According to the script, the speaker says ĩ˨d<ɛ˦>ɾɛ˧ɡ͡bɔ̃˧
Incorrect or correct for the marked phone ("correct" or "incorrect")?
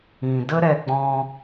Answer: incorrect